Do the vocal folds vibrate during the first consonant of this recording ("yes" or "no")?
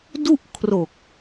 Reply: yes